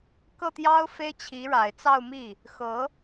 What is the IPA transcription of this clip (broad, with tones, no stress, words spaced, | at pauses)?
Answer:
kɤ˥˩t̪jɑ˥ʊ̯ fe˥ɪ̯t͡ɕʰi˧˥ɻa˨˩ɪ̯ t͡sɑ˥˧ʊ̯mi˥˩ | xɤ˧˥